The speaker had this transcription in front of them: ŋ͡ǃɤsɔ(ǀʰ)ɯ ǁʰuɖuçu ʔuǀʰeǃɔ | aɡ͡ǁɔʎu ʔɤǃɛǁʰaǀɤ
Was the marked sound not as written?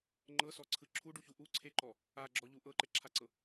no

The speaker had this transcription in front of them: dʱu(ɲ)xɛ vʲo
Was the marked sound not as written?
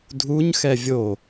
no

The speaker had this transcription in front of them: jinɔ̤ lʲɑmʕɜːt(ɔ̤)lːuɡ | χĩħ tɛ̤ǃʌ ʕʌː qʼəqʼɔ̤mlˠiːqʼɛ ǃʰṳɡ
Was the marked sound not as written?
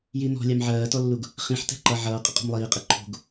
yes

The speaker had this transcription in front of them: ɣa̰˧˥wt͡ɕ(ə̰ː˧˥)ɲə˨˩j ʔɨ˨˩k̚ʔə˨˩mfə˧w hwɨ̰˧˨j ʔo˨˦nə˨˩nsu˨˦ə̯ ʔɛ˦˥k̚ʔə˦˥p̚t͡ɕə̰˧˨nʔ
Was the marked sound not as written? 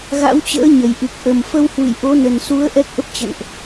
no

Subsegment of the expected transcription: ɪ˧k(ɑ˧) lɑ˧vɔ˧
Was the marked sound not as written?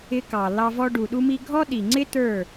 yes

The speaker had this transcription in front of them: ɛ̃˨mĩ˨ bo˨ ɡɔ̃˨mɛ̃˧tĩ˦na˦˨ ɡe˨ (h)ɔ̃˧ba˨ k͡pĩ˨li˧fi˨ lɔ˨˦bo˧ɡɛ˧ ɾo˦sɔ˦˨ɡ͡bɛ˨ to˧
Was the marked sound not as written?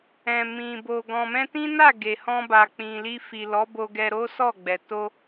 no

